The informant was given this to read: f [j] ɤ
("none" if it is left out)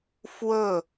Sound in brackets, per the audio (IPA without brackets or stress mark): w